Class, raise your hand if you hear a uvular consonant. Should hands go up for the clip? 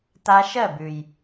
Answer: no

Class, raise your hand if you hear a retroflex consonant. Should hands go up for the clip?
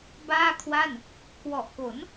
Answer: no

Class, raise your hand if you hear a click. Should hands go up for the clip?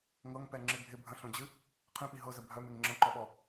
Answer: yes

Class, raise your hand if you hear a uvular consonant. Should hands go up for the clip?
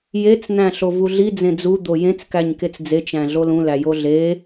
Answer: no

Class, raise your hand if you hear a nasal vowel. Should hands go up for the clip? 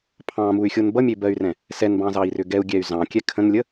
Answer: yes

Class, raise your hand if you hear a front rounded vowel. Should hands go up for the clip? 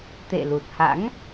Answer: no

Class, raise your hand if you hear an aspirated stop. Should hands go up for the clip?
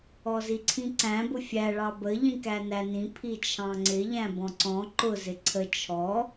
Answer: yes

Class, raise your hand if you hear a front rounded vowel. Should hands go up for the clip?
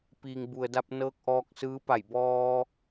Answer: no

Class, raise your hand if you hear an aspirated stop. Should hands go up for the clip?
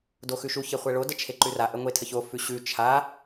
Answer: yes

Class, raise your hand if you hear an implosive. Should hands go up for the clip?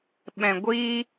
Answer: yes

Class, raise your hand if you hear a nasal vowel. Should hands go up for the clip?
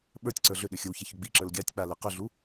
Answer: no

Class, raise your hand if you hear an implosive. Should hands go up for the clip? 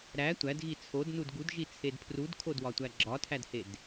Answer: no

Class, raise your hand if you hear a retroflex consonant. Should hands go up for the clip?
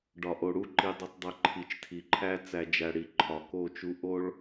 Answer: yes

